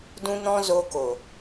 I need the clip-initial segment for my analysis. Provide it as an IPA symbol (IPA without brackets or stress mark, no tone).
d